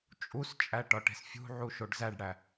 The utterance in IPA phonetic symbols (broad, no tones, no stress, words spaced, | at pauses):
t͡ʃʼust͡ʃʼæ ʈɒʈe̤sfʲṳʕu ʃoɖzæɖɽæ